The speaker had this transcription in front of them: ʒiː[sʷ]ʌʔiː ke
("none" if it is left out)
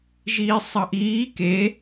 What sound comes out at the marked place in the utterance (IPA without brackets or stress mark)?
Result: sˤ